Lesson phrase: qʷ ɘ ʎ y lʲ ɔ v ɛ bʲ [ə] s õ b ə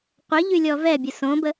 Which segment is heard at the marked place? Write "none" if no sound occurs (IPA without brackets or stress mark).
ə